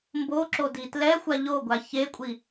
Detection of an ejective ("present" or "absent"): present